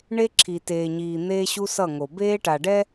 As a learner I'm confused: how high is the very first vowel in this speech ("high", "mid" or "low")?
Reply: mid